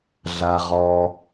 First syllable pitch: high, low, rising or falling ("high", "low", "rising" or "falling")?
low